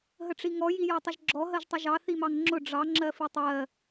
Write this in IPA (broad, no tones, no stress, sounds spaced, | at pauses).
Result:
ɦ ə ʈ͡ʂ i ŋ ɔ j i j ɒ tˤ ə ʒ ɡ͡ǁ ɔ ɦ ɜ ʒ tˤ ʊ ʒ ɑ θ i m ɑ ŋ ŋ͡ǁ ʊ ɖ͡ʐ ɑ ŋ͡ǁ ɜ f i tˤ ɜ